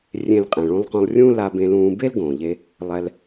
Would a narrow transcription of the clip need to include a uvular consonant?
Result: yes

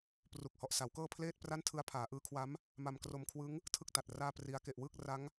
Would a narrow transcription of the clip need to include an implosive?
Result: no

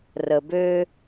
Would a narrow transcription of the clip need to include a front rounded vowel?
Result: yes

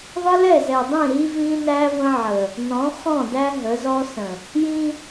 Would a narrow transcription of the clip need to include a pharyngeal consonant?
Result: yes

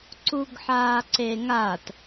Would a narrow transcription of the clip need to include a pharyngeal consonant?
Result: yes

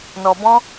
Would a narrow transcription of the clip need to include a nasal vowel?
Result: yes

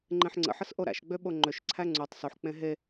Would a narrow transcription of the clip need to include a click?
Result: yes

